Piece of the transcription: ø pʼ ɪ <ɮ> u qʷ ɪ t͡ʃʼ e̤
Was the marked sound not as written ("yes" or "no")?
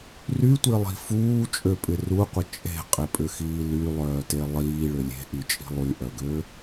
yes